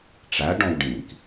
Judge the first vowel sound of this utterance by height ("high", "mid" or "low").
low